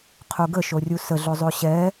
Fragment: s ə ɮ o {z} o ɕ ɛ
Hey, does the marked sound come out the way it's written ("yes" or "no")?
no